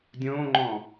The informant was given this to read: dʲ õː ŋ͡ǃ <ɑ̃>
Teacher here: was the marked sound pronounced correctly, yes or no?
no